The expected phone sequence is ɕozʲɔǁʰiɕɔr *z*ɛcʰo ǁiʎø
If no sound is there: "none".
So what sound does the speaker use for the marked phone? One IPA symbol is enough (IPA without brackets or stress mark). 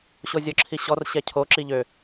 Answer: ɕ